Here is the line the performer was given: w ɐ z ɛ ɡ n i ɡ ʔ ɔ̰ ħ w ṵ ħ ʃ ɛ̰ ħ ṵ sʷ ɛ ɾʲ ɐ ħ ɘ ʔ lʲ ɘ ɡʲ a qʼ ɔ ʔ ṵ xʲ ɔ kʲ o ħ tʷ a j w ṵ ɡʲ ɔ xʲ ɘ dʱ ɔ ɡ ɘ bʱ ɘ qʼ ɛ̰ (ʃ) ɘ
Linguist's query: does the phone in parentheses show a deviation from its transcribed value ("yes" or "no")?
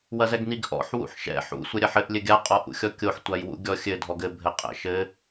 no